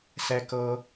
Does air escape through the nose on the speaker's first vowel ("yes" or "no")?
no